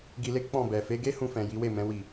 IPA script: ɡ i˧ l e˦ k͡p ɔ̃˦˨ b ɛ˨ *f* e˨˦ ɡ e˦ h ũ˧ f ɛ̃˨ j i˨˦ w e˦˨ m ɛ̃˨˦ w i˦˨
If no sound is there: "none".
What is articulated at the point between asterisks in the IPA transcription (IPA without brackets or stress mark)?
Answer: f